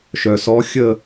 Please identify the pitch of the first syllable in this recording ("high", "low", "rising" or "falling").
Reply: low